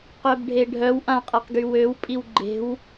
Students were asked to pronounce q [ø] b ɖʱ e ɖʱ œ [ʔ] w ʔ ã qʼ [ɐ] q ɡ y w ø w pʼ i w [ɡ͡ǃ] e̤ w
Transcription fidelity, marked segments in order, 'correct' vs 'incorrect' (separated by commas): incorrect, incorrect, incorrect, correct